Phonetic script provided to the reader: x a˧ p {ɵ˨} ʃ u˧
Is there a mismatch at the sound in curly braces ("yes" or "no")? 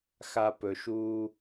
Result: no